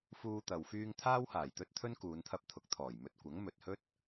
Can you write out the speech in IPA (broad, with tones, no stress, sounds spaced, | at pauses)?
f uː˧ t̪ ɐ˨ w f yː˧ ŋ t̪ʰ aː˥ w h aː˨˩ j t̪ ɵ˥ t̚ t̪ʰ ɵ˥ n k uː˨˧ n t̪ʰ ɐ˧ p̚ t̪ʰ ʊ˨˥ k̚ t̪ʰ ɔː˨˩ j m ɵ˧ t̚ kʷ ɐ˨˥ ŋ m ɵ˨ t̚ h ɵ˥ t̚